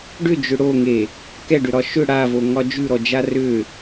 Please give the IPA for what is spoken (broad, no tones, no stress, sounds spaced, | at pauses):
ɖ ʏ d͡ʒ ʏ ɽ o ŋ e | k ɛ ɖ ʏ ɾ ɒ ʃ ʏ ɽ a v o ŋ ɒ d͡ʒ ʉ ɾ ɔ d͡ʒ a r ʏ